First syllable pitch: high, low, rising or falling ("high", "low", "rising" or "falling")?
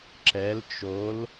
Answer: rising